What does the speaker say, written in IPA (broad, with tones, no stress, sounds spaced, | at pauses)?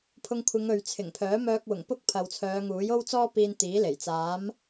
pʰ ʊ˧ ŋ kʷʰ ɪ˨˧ ŋ ɵ˨ ɥ t͡sʰ ɪ˨˩ ŋ pʰ œː˨˥ m œː˧ k̚ w ʊ˨˩ ŋ p ʊ˥ k̚ pʰ ɐ˨ w t͡sʰ œː˨˧ ŋ uː˨˥ j o˥ w t͡s ɔː˥ p iː˧ n t̪ iː˨˥ l e˨˩ j t͡s aː˨˥ m